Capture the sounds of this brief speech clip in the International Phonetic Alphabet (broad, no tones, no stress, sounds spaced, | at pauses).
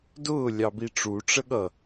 d ʊː lʲ ɑ b i ʈ͡ʂ u ʈ͡ʂ ə ɠ ʌ